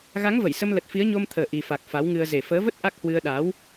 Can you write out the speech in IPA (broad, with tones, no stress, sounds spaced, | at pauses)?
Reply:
ɣ a˨˦ ŋ v ə˧˩ j s ə˧ m l ə˨˩ t̚ f i˨˦ ə̯ ɲ o˧ m t̪ʰ əː˨˩ ʔ i˨˩ f a˨˩ k̚ f a˨˦ w ŋ ɨ˧ ə̯ z e˨˩ f əː˨˦ v ə˦˥ t̚ ʔ a˦˥ k̚ h w ɨ˧ ə̯ ɗ aː˨˦ w